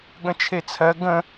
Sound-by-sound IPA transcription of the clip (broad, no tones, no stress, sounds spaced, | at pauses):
ɠ ə̃ t͡ʃʰ e t͡sʰ ɜ ɡ ə̃